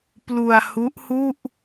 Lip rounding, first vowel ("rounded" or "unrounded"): rounded